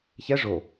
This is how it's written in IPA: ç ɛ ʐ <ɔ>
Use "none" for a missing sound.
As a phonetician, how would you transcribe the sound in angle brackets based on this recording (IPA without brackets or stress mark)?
o